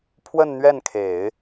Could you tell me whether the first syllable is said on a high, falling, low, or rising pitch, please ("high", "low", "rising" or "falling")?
falling